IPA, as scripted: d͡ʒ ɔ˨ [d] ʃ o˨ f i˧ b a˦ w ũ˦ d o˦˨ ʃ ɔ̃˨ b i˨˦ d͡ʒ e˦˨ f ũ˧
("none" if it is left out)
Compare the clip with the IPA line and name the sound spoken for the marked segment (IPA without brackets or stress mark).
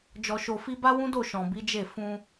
none